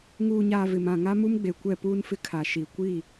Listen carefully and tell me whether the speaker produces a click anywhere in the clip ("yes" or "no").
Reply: no